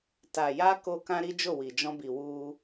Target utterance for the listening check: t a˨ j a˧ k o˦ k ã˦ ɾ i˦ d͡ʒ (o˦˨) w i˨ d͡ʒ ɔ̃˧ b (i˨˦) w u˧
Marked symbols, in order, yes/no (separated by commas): yes, no